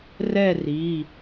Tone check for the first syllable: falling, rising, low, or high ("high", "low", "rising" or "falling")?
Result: falling